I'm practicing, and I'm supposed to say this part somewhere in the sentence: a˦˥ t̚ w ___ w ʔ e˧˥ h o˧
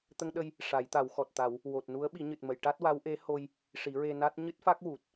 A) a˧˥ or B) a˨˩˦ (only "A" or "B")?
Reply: A